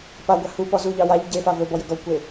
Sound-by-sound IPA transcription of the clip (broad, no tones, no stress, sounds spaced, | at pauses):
p a ɡʷ a h u p ɔ z u ʎ ɑ w a ʎ ɟ e f a v ɵ b ɔ j ɵ ɡ ɔ kʷ e